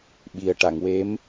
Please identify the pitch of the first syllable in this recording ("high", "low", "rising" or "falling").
low